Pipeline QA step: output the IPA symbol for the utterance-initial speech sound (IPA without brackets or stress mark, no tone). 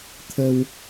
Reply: t̪ʰ